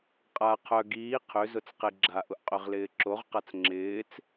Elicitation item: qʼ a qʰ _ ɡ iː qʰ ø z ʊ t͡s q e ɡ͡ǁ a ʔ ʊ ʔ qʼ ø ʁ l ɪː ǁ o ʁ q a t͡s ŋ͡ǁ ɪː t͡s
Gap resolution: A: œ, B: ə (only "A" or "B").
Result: A